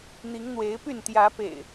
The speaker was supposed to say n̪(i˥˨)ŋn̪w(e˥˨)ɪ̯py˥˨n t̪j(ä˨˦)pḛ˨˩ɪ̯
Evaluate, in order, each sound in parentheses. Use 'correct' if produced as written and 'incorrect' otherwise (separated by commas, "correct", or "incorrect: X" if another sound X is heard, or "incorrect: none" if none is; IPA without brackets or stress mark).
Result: incorrect: i˨˦, incorrect: e˨˦, correct